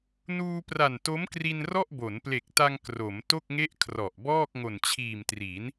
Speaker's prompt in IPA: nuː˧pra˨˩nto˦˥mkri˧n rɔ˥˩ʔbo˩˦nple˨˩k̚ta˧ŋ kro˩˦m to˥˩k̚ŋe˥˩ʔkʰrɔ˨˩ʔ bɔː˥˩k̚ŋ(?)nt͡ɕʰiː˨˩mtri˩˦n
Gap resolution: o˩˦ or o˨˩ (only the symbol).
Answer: o˨˩